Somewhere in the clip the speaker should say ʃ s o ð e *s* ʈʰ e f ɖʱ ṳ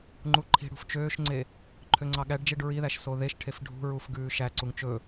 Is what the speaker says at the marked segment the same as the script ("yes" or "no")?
no